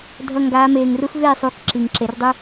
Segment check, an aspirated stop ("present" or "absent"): absent